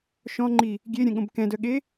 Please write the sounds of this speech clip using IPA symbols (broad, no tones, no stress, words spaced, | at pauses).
ʃɔ̃ŋ͡ǃi | ɡʲeɾʲɛ̃ɠõb kɛ̃dœɠe